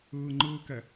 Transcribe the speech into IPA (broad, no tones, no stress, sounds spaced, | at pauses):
ɯː ŋ͡ǃ ɯː k ɛ